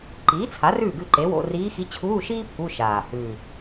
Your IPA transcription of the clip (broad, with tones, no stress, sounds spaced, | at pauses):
ǃ iː˩˥ t͡sʰ a˩˥ r ʉː˥˩ ɡ ʉ˥˩ ǃ e˩˥ w o̰˧˥˧ r iː˧˥ x i˧˥ t͡ɕʰ uː˧˥˧ ʃ iː˥ pʰ u˧˥˧ ʃ aː˨˩ h ʉː˨˩